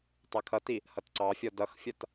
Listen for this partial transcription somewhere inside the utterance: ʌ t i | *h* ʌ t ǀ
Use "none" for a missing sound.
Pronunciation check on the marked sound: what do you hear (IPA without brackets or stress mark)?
h